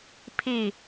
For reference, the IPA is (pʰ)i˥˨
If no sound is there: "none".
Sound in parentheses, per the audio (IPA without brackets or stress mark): pʰ